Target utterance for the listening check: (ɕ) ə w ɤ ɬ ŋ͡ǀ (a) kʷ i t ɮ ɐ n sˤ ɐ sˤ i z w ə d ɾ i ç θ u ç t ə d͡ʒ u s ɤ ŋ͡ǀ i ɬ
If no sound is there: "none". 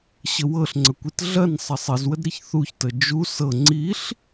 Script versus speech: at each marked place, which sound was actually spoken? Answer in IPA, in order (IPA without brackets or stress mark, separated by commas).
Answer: ɕ, ə